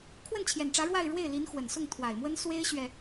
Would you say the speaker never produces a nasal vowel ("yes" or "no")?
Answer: yes